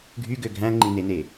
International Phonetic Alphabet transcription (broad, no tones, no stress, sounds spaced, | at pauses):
ɡʱ y ɡ ø ɡʱ æ̃ ŋ͡ǃ ĩ n e n e